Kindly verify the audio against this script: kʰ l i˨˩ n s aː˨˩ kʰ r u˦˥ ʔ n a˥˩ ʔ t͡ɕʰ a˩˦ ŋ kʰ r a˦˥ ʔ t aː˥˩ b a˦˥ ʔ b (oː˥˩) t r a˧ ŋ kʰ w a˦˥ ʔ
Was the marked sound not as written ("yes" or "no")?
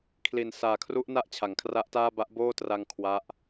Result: no